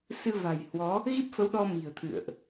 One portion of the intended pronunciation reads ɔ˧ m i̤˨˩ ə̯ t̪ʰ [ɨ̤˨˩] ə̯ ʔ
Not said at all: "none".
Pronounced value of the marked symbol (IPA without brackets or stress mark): ɨ̰˧˨